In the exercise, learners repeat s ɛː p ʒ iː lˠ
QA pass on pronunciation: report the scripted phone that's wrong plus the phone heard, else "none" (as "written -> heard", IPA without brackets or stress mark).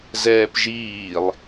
s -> z